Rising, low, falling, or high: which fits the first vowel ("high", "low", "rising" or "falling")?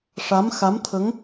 rising